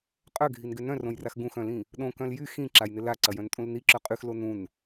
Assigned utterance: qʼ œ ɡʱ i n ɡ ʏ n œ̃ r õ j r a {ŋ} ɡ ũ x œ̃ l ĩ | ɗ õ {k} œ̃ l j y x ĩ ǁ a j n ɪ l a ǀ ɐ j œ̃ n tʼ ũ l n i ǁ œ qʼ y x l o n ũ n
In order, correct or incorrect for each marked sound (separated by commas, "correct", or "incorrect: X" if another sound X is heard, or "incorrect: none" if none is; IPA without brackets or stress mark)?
incorrect: x, correct